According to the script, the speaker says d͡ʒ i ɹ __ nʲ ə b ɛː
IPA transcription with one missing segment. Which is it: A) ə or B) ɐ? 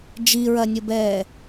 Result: B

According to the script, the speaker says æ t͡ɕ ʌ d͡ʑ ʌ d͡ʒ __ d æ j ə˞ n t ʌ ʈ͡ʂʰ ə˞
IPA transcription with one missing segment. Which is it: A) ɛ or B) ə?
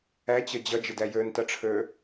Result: B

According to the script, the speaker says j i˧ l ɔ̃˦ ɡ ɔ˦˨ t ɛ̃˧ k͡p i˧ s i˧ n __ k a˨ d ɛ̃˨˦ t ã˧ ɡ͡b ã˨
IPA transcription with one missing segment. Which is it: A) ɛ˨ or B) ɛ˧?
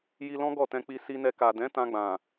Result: B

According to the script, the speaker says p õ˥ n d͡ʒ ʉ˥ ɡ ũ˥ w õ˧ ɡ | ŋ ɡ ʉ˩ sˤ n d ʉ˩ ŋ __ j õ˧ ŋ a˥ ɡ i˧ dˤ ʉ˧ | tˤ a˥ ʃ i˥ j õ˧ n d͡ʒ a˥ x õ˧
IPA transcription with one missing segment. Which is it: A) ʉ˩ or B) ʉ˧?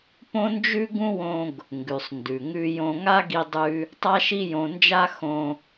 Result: B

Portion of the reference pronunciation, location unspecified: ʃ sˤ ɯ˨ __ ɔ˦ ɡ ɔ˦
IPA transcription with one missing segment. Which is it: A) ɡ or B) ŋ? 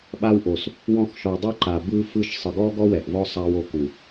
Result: A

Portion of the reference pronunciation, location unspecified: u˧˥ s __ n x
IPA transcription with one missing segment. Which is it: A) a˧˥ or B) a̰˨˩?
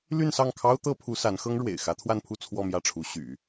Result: A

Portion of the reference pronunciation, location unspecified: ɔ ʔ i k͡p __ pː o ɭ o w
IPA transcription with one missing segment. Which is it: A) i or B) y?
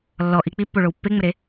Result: A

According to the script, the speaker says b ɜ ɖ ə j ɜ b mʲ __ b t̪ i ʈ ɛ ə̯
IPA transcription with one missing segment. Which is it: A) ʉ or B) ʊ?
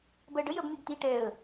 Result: A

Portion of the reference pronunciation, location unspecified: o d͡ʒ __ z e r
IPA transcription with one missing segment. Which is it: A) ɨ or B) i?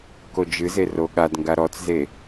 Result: A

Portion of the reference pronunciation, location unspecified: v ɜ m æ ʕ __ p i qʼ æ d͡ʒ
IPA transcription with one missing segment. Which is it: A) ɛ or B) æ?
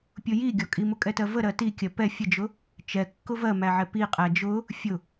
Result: A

